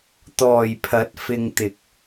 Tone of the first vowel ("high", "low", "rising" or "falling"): low